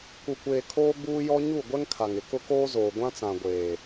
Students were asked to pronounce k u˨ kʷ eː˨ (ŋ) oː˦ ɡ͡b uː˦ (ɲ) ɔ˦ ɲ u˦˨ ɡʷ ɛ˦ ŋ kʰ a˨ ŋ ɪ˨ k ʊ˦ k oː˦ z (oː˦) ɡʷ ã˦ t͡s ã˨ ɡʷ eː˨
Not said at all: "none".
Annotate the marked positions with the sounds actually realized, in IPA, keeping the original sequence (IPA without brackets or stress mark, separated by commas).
kʰ, j, oː˨